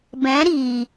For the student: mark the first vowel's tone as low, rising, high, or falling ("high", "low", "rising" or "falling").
rising